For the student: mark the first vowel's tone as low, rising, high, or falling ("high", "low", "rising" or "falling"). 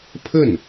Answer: falling